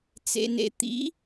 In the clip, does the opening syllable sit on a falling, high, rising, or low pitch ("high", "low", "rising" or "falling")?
low